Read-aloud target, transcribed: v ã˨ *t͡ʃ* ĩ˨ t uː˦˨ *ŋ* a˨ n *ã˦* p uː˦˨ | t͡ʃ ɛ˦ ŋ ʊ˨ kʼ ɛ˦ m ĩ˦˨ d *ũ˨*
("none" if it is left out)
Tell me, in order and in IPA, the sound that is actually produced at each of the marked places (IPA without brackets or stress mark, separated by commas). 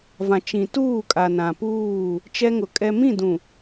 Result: t͡ʃ, kʼ, ã˨, ũ˨